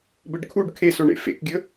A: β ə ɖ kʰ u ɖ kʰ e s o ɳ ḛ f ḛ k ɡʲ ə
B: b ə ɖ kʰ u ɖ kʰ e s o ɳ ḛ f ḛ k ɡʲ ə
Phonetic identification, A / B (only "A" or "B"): B